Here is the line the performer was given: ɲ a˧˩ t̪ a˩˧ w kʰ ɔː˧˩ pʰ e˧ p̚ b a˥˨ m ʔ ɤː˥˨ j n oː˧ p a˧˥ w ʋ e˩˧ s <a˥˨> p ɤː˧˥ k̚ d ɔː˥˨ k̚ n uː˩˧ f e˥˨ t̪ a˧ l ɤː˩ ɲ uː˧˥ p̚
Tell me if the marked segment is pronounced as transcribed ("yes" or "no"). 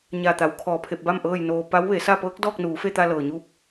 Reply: yes